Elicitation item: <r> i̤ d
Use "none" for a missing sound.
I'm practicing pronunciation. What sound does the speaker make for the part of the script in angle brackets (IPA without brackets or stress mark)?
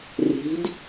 r